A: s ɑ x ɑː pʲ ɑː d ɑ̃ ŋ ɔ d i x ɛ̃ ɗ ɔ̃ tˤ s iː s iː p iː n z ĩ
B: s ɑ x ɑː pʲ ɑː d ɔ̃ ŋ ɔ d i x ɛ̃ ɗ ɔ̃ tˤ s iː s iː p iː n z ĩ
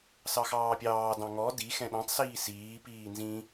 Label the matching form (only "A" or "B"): A